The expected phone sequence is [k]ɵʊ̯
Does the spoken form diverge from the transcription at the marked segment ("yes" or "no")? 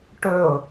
yes